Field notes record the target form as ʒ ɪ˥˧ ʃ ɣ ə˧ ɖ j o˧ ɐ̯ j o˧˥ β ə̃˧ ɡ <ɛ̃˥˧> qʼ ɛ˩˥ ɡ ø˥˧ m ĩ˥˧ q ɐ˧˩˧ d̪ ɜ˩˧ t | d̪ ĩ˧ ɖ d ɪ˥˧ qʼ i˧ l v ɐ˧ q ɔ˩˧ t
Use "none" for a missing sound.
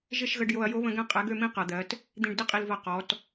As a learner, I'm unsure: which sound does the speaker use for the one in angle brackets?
ɛ̃˥˧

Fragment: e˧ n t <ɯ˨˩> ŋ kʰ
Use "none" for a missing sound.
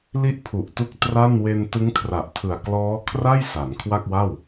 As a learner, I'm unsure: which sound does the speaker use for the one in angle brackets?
ɯ˦˥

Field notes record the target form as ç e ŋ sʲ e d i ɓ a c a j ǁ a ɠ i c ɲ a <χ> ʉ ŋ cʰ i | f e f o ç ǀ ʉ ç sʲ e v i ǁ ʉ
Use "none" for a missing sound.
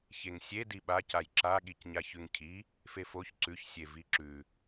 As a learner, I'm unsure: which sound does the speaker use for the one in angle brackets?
ç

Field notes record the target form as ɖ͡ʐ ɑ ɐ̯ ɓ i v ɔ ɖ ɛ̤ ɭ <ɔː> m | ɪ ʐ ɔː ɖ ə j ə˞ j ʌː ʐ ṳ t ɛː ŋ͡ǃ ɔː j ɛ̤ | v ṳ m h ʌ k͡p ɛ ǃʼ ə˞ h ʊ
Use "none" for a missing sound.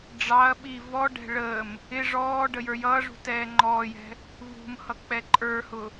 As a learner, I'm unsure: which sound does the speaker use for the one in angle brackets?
əː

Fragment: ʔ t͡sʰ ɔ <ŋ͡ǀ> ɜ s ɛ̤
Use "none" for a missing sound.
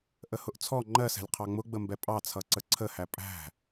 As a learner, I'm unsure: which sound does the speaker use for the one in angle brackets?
ŋ͡ǃ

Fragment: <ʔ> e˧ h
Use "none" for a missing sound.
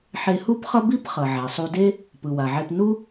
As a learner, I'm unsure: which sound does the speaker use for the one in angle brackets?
ħ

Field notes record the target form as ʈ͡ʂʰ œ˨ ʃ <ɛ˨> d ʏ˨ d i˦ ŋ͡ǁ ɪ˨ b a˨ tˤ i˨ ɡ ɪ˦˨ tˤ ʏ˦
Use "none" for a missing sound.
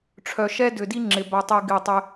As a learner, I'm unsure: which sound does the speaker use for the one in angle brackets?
ɛ˦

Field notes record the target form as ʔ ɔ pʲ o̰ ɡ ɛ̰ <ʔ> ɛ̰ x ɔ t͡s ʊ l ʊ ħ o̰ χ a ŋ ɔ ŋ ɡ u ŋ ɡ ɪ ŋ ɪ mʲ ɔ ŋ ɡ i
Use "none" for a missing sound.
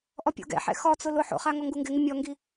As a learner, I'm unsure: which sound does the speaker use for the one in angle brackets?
ħ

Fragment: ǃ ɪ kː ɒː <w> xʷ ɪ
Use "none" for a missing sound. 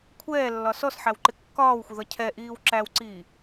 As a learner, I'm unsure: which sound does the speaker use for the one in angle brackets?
w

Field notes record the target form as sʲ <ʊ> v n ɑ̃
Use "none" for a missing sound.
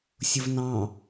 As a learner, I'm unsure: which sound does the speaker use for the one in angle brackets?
ʊ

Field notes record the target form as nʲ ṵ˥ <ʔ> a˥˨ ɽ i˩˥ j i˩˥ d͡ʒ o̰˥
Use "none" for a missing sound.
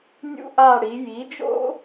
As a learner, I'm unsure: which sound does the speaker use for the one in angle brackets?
ʔ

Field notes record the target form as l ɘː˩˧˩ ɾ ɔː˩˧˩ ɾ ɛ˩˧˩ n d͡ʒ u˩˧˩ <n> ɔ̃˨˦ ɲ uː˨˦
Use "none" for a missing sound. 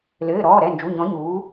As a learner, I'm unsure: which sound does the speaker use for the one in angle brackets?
ɲ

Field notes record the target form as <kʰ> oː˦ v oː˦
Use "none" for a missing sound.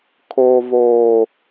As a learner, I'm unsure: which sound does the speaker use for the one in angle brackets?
kʰ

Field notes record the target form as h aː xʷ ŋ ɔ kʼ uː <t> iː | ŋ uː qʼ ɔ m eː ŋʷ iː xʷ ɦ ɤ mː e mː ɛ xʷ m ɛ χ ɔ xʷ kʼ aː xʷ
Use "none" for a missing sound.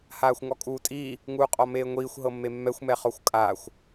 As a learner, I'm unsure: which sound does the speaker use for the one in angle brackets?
tʼ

